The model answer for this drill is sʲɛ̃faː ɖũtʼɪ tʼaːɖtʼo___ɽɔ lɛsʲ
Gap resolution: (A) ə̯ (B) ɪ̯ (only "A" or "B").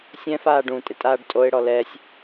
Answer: B